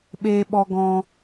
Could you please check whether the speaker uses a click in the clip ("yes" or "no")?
no